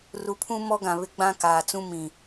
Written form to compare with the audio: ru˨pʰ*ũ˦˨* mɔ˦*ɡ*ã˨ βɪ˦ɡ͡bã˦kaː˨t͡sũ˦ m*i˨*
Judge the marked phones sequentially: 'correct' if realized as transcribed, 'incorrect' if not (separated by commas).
incorrect, correct, incorrect